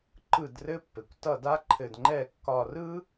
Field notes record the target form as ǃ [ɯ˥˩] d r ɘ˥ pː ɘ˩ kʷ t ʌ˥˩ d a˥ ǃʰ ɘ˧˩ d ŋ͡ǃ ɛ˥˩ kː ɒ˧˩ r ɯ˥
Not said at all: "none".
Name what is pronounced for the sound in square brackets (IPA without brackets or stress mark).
ɯ˥˩